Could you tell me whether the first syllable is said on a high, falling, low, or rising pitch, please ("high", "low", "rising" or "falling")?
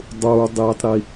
high